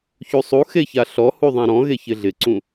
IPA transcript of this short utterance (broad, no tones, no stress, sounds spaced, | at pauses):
ç u sˤ u x e ç a ɬ ɔ h u ðˤ ã ɾ ɔ̃ ɣ e ç ɪ ɮ ɪ ǀ ũ